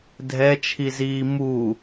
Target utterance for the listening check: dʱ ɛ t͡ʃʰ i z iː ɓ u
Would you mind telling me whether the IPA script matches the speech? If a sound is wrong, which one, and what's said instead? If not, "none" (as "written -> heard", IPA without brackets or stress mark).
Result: ɓ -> m